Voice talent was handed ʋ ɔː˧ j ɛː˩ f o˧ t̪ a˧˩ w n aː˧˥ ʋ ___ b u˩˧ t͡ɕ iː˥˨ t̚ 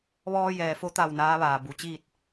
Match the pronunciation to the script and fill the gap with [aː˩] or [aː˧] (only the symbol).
aː˩